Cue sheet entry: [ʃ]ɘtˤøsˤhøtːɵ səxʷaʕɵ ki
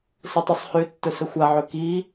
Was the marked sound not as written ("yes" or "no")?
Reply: yes